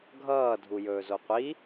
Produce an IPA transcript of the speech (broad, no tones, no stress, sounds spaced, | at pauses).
ɡʱ ʌː dʱ u j ɵː z o qʷ i